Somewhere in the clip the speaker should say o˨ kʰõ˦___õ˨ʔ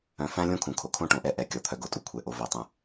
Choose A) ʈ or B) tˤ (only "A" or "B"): A